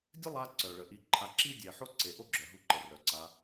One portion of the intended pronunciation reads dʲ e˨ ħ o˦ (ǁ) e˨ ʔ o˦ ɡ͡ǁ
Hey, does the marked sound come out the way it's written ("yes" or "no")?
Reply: no